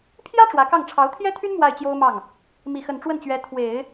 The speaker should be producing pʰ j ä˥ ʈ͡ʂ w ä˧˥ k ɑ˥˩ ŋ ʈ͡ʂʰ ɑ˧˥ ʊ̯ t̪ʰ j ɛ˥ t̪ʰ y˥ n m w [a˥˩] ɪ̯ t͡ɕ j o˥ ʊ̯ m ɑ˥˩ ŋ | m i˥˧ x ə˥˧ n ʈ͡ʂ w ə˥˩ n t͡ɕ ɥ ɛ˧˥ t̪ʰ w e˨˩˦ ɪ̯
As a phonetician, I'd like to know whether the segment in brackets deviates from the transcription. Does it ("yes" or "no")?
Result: no